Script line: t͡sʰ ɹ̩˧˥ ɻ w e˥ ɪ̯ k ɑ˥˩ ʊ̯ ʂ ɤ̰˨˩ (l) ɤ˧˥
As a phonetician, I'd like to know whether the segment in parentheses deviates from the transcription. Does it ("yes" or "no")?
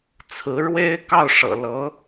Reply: no